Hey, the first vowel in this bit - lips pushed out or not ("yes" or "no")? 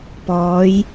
yes